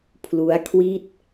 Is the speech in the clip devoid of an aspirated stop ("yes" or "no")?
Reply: no